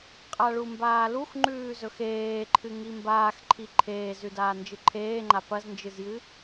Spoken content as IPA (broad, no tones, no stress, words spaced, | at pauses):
qʼaɭumbaːlux ŋ͡ǃʉːzɵxeːǃʰɨ ŋimbaːxǃʰi ǃʰeːzʉdaː nd͡ʒɨǃʰeːŋ͡ǃa pɐznd͡ʒɨzjɨ